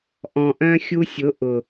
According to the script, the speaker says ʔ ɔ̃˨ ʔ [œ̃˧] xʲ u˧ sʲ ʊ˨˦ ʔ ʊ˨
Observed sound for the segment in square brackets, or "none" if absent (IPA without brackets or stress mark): œ̃˧